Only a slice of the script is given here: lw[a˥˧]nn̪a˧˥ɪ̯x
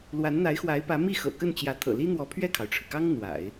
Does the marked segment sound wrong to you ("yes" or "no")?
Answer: yes